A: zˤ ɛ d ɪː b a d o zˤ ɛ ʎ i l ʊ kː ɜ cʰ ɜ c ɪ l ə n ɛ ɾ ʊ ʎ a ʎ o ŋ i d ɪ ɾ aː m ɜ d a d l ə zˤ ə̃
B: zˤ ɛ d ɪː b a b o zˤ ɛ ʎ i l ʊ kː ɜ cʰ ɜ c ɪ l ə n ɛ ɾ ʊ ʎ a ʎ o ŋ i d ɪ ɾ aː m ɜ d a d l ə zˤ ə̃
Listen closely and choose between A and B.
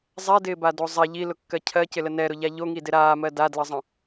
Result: A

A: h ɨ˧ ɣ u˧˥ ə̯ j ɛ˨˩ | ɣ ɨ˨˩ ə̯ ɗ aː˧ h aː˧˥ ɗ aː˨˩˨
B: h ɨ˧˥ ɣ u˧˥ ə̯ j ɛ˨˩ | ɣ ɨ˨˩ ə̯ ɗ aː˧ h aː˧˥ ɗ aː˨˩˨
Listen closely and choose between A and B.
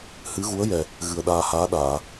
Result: B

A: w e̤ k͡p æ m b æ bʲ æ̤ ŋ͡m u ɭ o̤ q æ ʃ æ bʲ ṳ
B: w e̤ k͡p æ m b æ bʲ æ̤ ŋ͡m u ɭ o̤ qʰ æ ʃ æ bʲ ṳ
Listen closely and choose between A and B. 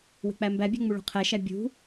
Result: B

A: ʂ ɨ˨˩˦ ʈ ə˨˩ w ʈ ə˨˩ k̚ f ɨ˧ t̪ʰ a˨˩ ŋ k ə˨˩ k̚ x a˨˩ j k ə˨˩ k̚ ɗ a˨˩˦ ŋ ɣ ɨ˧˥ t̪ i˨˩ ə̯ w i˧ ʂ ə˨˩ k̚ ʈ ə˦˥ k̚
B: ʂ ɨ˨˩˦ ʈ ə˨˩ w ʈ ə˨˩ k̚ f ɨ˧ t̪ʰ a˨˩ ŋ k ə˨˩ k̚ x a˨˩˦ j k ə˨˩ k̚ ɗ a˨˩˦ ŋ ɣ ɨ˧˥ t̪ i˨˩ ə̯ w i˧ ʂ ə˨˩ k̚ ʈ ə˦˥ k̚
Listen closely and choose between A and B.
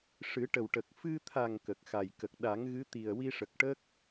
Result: A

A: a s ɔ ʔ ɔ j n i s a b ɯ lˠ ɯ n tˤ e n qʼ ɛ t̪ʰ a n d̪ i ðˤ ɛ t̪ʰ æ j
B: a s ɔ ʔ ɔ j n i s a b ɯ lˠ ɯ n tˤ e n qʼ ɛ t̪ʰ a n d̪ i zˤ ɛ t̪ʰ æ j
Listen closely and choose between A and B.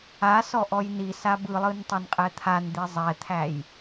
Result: B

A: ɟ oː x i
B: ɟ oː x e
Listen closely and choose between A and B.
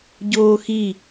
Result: A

